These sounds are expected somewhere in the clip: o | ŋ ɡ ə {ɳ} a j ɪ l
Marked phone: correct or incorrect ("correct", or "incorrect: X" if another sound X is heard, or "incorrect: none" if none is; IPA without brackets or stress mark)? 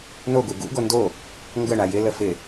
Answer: correct